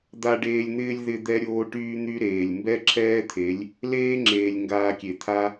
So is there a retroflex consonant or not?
yes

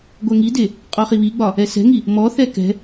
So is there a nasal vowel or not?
no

